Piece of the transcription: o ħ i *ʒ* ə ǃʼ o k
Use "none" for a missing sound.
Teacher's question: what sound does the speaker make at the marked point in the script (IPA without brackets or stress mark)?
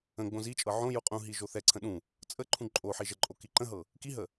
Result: ʒ